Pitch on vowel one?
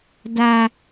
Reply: high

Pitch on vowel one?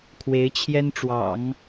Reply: rising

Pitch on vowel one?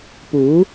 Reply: rising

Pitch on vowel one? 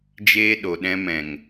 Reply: high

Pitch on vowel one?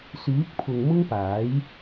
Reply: rising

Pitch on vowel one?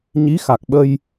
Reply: rising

